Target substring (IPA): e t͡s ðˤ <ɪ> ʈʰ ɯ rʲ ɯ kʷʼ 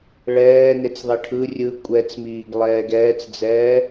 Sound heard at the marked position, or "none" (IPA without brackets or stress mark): i